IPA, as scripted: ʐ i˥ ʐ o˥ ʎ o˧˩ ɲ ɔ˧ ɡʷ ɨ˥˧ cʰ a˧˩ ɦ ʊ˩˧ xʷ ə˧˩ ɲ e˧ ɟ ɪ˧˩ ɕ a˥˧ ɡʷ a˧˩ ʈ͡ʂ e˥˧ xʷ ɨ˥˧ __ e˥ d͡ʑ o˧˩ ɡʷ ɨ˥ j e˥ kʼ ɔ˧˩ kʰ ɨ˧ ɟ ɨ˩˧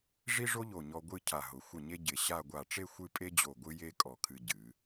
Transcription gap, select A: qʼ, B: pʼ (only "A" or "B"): B